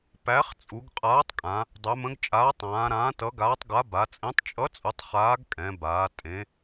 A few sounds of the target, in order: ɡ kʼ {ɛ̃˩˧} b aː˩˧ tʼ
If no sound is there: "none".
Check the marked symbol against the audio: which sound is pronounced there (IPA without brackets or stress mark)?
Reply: ɛ̃˩˧